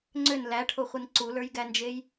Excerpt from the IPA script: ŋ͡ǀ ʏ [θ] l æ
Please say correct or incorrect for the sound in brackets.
incorrect